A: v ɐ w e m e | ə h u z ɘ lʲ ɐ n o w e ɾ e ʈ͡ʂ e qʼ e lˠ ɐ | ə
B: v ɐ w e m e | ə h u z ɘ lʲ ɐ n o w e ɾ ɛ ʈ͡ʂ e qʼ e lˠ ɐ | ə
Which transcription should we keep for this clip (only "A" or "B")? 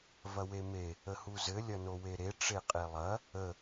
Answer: A